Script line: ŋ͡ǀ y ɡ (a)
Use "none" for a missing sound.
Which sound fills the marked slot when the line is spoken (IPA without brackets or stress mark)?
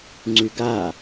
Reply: a